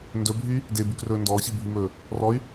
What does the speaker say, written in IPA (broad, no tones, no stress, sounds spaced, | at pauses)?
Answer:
n d ɵ bʱ y | d e b y k r ɵː n d ɔː ɕ i bʱ y m ɵː | r ɔ y̯